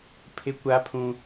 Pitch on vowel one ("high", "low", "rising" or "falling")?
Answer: high